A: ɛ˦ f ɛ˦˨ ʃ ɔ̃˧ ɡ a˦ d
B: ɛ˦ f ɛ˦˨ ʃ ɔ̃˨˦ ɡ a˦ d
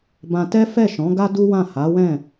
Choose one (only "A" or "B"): B